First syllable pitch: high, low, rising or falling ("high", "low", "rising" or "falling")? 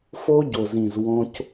high